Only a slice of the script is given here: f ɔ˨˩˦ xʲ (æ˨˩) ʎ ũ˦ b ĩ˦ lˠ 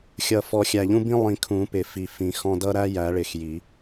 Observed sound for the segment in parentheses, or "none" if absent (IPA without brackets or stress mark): æ˨˩